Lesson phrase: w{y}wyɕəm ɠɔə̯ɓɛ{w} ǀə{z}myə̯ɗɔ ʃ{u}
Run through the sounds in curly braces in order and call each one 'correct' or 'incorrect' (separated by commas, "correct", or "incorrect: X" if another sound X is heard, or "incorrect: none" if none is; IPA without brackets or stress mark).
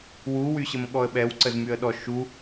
incorrect: u, correct, correct, correct